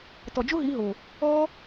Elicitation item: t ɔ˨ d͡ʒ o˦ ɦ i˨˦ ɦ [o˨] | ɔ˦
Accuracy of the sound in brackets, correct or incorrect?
correct